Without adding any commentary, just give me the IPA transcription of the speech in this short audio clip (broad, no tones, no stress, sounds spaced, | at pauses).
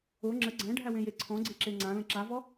o ŋ͡ǁ ə ɡ͡ǀ æ̃ ɖʱ æ w ẽ j e ǀʰ ɔ̃ ɡ͡ǀ e ǁ e ŋ͡ǀ ã l ə̃ ǁ a v ɔ